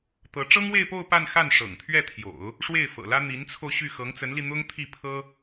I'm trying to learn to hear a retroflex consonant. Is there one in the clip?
yes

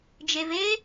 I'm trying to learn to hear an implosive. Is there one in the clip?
no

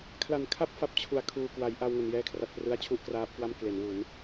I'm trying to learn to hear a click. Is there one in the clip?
no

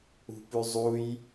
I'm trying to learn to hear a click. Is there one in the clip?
no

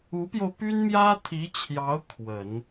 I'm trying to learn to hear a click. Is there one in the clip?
no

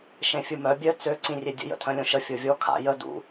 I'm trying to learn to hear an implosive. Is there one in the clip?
no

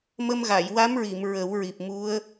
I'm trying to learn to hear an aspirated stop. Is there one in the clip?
no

